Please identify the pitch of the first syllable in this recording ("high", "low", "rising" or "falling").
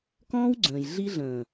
high